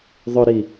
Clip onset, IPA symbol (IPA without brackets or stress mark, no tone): ðˤ